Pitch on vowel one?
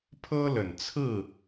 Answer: high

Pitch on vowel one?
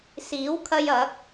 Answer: rising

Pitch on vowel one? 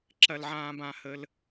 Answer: high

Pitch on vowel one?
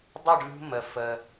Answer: falling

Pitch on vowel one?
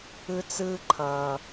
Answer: high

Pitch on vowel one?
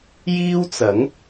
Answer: high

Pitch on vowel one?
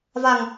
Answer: low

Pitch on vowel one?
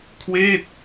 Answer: falling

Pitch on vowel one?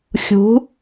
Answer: rising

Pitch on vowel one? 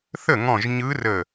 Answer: falling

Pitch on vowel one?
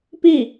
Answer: falling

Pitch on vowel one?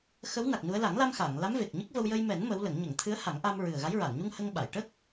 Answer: rising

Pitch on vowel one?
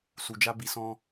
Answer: low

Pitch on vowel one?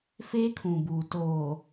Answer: high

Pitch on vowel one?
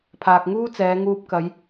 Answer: low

